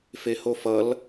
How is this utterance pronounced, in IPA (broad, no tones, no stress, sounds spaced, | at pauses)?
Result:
f e h o f ʌ l